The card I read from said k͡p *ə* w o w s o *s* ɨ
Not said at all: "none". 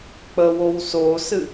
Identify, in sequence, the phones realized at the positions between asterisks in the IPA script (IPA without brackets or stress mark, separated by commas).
ə, s